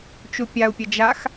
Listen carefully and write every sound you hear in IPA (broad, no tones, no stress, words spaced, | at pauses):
t͡ʃupʲau̯pʲə d͡ʒax